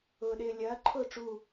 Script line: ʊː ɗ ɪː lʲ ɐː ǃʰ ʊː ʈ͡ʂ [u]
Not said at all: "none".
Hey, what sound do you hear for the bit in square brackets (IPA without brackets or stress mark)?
u